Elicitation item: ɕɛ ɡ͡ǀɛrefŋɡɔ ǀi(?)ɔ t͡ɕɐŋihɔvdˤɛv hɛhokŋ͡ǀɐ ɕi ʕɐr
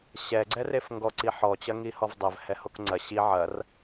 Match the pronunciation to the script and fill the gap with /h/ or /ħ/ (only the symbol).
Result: ħ